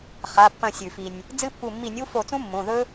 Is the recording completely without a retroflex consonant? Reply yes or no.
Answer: yes